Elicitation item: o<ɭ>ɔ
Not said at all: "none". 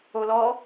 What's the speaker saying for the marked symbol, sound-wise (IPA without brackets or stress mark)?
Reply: l